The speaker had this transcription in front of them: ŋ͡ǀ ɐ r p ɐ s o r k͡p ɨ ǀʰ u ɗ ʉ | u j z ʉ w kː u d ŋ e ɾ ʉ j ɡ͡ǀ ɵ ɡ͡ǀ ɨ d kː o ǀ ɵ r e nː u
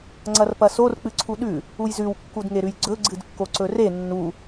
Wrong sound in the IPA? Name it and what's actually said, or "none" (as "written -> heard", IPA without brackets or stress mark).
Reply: none